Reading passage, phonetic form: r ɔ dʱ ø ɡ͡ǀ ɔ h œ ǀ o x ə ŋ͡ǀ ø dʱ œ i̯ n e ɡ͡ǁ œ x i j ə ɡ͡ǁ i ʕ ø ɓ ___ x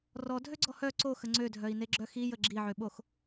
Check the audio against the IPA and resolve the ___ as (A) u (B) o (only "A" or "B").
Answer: B